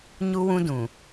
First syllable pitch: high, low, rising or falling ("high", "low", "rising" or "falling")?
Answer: high